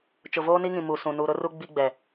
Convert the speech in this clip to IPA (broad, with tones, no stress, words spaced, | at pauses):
t͡ʃʊ˨voː˦ni˦ŋĩ˨ mu˨sũ˨ nu˨ɾʊ˦ru˦ ɡ͡bi˦ɡ͡bɛ˨